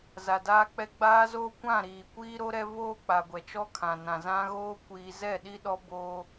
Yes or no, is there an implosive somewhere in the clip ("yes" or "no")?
yes